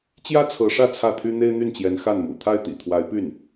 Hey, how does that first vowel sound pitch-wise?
high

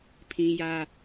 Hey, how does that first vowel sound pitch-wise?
high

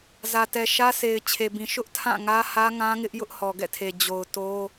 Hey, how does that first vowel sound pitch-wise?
low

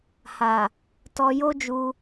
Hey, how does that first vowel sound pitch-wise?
low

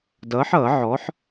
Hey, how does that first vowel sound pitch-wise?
rising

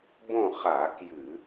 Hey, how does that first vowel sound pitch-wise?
falling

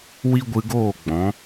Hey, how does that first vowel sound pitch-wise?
high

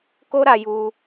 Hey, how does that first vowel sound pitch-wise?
high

